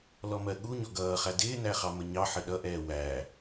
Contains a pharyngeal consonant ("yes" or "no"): yes